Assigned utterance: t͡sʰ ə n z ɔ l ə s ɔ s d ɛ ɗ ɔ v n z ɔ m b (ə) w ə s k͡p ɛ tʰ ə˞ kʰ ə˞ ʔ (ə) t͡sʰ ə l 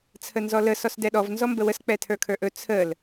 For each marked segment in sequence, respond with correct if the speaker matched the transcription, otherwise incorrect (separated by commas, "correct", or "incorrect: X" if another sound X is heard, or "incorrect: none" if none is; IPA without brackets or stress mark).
correct, incorrect: ɵ